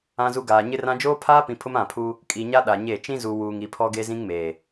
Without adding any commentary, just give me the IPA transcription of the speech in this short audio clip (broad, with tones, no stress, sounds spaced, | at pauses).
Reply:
ã˦ z u˦ ɡ aː˨ ɲ ɪ˦ r ã˦ d͡ʒ oː˦ pʰ aː˦ p ĩ˨ pʰ ʊ˦ m ã˦˨ pʰ u˦ | kʼ i˨ ɲ a˦ ɗ a˨ ɲ e˦˨ t͡ʃ ĩ˦ z u˨ w uː˨ ŋ i˨ pʰ ɔ˦ ɡ e˦ z ĩ˦ ŋ m eː˨